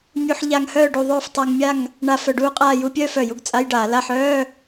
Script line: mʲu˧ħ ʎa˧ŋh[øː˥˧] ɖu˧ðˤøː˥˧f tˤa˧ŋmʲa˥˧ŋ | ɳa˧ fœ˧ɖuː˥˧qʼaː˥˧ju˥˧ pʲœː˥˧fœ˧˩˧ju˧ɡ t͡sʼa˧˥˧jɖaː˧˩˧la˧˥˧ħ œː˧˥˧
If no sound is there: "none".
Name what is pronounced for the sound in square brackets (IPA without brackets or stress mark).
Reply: œː˥˧